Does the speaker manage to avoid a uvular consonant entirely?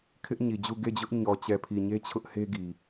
yes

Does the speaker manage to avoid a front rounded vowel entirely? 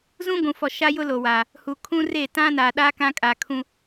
yes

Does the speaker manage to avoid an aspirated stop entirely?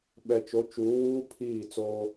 no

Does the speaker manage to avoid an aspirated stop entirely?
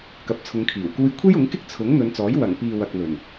no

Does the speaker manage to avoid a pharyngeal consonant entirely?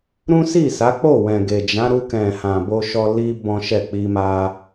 yes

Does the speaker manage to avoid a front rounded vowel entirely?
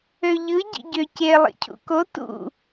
no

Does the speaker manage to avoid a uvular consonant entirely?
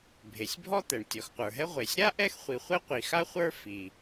no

